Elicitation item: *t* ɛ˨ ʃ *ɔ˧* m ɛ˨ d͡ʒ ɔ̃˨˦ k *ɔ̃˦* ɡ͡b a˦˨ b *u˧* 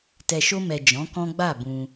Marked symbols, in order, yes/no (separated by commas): yes, no, yes, no